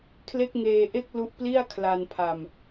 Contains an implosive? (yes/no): no